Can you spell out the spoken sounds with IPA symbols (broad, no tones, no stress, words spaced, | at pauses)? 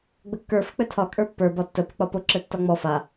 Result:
ɡ͡bəkːə˞ fɘk͡pɘtʰɒ kʼə˞pːə˞ bɒtːə pək͡pɒpo ǁɘtːɒŋ͡mɔ fa